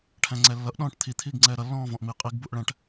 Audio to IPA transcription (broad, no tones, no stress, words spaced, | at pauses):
ʈʰæ̃ŋ͡ǀɛlːʌʔ ɗɔ̃ːʈt̪ʰi t̪ʰiːɡŋ͡ǀɛːɾʌ lːɔ̃ːvɔ̃ʔmi qʼiɡ buʔɭæ̃ʈ